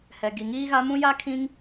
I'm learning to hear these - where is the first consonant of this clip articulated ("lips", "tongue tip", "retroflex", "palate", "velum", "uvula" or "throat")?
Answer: throat